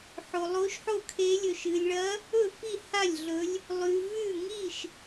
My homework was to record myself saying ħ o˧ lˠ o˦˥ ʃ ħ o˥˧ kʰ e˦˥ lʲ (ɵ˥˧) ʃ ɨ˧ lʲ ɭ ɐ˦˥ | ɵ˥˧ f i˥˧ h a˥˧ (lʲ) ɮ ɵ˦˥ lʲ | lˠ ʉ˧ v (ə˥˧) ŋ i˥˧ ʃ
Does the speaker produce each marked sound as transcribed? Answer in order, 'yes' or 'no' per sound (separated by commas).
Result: no, yes, no